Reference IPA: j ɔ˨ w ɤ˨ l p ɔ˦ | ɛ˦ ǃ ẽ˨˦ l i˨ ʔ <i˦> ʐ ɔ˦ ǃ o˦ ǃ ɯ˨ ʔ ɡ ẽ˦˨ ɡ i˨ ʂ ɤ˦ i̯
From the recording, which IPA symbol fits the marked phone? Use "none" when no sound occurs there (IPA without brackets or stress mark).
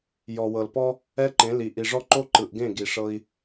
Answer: i˨